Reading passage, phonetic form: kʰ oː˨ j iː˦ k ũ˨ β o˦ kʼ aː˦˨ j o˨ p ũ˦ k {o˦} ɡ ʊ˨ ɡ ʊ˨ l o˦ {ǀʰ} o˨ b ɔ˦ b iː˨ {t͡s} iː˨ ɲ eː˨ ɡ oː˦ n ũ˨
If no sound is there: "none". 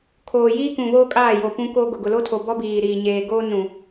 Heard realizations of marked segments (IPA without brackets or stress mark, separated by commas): o˦, tʰ, ɾ